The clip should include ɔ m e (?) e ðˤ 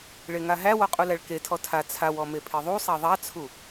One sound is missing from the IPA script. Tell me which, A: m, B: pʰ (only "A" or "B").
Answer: B